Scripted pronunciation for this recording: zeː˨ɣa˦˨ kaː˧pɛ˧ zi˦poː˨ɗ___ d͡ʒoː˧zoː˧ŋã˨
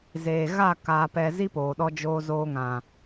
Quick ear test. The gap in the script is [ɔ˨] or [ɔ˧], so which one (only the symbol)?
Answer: ɔ˧